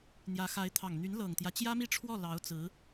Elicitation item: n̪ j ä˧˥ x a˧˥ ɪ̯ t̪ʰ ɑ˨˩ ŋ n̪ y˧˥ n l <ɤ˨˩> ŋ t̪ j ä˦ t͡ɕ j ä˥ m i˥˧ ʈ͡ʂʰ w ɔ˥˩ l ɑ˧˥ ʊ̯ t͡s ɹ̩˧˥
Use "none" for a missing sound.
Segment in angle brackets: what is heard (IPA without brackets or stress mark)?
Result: ɤ˨˩